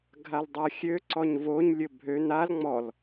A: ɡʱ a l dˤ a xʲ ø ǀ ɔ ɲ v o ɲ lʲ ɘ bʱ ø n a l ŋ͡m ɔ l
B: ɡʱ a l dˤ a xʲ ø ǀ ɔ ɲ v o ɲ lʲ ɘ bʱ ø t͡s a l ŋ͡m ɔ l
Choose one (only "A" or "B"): A